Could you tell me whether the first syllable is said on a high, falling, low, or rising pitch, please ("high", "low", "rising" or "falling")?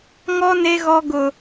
high